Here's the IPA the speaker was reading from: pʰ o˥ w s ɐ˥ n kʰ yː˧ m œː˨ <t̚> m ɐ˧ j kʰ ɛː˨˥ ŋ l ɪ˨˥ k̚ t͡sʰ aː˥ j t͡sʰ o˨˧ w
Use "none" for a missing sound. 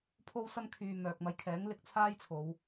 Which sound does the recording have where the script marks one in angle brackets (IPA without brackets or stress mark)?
k̚